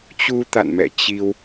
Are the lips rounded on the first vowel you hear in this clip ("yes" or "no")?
yes